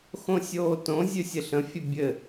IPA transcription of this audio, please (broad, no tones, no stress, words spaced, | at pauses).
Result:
xõsʲoːtõ zʲʉsʲɘɬə̃ fʲɘbʲɘ